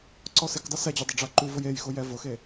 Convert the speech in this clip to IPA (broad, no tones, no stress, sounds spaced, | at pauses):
ǀ ɔ s ɪ k dˤ ɪ s ɛ d͡ʑ ɪ dˤ ɪ ɖ͡ʐ a ǃ u v ʊ j e j x ʊ j ɛ v ʊ x e